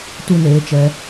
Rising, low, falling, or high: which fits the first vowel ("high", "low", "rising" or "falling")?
high